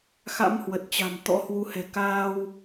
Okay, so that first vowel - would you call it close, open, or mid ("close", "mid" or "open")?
open